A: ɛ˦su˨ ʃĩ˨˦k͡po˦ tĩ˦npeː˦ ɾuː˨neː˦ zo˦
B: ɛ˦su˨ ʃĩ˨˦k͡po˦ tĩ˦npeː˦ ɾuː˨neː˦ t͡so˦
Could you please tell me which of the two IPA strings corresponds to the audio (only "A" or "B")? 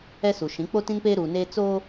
B